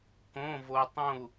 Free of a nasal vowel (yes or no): no